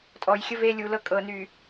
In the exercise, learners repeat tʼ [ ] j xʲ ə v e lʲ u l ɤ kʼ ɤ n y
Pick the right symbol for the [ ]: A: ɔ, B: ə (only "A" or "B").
A